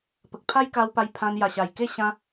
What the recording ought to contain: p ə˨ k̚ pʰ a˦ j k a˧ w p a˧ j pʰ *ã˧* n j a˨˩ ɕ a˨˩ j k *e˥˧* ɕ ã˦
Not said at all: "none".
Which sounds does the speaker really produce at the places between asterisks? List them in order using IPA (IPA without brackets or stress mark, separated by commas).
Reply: ã˧, e˥˧